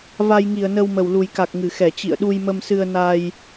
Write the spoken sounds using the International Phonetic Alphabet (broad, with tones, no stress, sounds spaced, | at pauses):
v a˧ j ŋ i˧˩ ə̯ n ə˧ w m ə˨˩ w l u˨˩ j k a˨˩ k̚ ŋ ɨ˧˩ x ɛ˧˩ t͡ɕ ḭ˧˨ ə̯ ɗ u˧ j m ə˧ m s ɨ˧ ə̯ n a˧ j